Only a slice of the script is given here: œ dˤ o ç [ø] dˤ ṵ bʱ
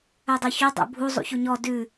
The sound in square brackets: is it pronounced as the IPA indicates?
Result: yes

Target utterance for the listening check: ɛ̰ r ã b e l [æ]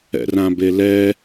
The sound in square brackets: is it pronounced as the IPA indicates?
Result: no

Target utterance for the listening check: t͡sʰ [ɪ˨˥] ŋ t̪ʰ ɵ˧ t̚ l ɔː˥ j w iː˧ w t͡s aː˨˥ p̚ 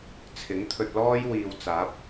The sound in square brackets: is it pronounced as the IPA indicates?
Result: yes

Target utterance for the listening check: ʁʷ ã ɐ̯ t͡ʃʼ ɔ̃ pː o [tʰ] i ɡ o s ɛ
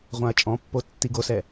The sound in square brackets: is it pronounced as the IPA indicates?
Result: no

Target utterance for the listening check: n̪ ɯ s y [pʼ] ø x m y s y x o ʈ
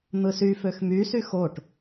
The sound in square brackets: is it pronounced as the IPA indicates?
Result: no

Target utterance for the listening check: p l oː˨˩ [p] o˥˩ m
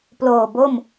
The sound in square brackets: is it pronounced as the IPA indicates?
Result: no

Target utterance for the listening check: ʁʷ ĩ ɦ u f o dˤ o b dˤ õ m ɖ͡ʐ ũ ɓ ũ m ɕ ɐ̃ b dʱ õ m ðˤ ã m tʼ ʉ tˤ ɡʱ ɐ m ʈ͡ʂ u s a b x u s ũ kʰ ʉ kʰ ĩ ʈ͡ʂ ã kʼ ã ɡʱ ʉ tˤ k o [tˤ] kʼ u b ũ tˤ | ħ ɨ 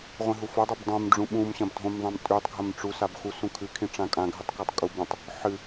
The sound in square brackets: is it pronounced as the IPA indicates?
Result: yes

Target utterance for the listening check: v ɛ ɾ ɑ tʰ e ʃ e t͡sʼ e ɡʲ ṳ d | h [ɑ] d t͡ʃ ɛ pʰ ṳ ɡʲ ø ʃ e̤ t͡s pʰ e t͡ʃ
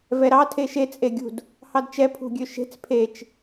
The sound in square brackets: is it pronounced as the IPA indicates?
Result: yes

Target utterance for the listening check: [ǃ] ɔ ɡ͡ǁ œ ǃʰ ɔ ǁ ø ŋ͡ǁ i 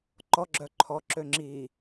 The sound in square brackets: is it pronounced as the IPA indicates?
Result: yes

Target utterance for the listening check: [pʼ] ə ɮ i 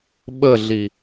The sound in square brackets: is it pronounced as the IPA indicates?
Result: no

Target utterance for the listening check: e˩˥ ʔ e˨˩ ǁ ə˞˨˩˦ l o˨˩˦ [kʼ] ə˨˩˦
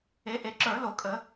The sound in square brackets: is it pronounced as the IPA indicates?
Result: yes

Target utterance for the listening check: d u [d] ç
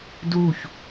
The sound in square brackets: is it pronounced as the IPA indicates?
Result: no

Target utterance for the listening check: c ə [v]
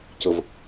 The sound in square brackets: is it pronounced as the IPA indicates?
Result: yes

